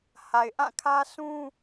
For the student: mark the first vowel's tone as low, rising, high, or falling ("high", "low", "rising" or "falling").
low